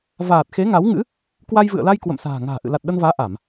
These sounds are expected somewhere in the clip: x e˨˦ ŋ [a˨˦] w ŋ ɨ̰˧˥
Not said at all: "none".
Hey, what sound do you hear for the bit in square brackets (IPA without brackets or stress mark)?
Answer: a˨˦